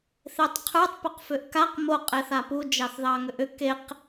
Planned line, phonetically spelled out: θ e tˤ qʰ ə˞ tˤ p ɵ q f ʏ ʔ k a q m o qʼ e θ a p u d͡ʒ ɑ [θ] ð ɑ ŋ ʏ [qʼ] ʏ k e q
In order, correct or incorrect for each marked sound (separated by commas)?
correct, incorrect